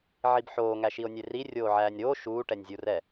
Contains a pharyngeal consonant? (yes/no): yes